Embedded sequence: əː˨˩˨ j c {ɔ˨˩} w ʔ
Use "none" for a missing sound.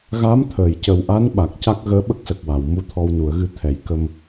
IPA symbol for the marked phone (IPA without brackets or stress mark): ə˨˩